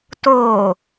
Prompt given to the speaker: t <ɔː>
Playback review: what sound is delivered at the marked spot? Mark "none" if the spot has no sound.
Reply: oː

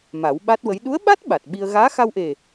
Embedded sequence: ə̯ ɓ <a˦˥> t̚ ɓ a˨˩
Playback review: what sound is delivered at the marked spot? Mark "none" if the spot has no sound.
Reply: a˦˥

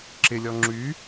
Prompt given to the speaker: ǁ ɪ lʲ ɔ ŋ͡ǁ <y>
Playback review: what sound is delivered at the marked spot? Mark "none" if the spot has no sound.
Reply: y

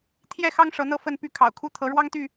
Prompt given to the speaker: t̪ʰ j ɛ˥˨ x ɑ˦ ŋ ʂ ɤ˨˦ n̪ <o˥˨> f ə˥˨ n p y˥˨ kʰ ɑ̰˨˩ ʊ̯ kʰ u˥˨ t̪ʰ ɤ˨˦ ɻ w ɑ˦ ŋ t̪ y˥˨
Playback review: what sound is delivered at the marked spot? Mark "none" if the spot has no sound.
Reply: ɤ˥˨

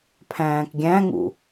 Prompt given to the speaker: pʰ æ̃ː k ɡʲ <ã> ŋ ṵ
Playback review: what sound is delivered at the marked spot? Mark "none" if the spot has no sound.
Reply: æ̃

